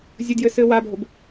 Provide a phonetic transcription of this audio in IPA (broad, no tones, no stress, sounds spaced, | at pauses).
zʲ ɘ d j ɘ s ɘː w a bʱ o b